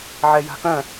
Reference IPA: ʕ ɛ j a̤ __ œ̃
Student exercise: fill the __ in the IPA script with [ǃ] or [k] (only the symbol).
k